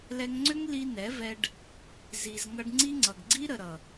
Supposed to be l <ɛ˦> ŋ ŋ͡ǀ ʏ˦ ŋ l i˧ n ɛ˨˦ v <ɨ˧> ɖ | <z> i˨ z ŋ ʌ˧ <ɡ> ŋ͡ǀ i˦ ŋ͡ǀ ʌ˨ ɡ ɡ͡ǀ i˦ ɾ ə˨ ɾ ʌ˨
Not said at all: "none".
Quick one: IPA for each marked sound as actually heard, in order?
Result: ɛ˧, ɛ˧, z, ɖ

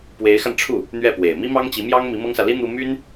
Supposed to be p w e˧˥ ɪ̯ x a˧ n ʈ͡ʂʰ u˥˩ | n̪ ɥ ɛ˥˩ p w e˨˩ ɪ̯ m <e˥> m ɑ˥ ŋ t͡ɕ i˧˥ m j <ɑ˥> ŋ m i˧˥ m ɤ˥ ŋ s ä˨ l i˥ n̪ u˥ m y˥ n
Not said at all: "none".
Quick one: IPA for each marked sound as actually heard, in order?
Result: i˥, ɑ˥

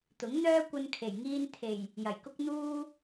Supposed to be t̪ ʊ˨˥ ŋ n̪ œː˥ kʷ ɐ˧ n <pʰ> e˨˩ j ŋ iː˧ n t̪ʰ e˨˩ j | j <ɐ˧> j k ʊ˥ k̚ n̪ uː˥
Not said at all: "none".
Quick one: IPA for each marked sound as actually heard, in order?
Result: kʰ, ɐ˨˩

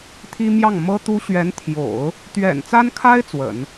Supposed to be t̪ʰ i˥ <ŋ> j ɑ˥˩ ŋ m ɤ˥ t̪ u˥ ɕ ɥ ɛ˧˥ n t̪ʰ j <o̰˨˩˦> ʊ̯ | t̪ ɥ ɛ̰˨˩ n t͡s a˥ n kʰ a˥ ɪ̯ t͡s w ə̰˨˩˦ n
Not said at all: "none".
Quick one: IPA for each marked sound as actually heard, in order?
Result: m, o̰˨˩˦

